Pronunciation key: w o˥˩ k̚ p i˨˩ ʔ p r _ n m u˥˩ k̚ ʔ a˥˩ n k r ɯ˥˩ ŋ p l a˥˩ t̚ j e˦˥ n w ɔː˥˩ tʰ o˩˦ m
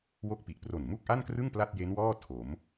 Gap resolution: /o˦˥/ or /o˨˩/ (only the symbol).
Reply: o˨˩